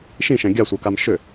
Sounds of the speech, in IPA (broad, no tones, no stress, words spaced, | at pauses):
ʃĩʃɛ̃ ɡʲasʷə˞kam ʃʏ